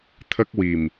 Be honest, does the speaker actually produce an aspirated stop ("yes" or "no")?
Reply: yes